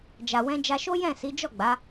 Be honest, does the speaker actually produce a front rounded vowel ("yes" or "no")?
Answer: no